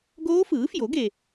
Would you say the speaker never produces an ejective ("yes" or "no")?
yes